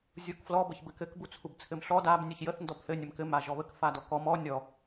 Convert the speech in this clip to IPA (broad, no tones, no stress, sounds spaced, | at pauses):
zʲ u k f l ɔ b ə ç b ɘ k ɘ k b u t͡sʰ u b t͡sʰ ɘ m ɬ ɔ d a b nʲ ɘ ç j ə θ n d ɔ b θ ɘ nʲ ə m k ɘ m a ʒ ɔ β ə k f a d ɔ k ɔ m ɔ nʲ ɔ